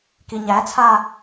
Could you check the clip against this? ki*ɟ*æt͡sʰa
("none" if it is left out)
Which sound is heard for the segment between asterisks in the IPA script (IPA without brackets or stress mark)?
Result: ɲ